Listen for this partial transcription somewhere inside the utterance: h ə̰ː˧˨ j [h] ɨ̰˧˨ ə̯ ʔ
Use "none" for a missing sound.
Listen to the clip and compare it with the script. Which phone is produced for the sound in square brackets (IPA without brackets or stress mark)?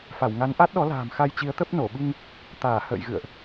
ɣ